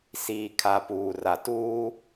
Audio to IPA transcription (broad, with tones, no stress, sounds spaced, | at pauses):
s iː˨ kʰ a˨ p uː˨ r a˨ t uː˦